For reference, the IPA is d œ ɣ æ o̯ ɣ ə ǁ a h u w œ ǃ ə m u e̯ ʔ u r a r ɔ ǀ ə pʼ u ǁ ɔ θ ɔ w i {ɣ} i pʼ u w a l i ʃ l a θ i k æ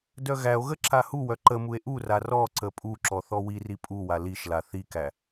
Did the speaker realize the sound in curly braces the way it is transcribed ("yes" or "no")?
no